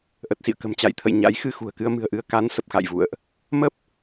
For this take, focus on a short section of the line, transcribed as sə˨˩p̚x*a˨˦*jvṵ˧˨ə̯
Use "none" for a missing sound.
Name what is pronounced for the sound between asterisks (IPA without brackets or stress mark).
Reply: a̰˧˨